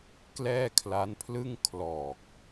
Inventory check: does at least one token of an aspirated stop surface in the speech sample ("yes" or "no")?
yes